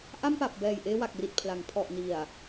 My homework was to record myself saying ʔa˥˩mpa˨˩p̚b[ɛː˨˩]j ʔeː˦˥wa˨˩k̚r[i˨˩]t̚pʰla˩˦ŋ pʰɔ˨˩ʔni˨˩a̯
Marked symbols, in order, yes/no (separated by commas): yes, yes